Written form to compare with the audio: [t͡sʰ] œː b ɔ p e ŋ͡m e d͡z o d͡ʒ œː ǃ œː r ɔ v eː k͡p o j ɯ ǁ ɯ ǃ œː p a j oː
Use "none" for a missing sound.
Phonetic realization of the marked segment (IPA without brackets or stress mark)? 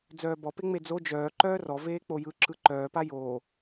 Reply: d͡z